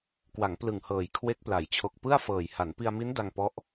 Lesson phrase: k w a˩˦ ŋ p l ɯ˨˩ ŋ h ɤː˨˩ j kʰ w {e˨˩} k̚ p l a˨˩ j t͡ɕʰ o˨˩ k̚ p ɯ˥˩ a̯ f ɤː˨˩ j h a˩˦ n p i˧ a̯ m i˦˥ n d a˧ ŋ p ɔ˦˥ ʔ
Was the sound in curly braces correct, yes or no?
no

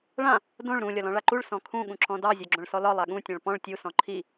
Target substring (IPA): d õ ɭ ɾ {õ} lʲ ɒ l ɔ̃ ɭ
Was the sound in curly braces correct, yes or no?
no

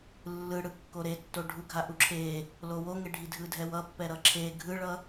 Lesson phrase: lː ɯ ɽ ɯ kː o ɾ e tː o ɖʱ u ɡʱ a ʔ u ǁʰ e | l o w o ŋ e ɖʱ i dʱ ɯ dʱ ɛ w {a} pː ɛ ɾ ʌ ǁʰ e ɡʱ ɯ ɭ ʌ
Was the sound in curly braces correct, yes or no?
no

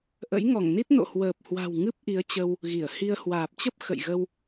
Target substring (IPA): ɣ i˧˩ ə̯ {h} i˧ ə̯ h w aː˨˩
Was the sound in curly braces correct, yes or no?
yes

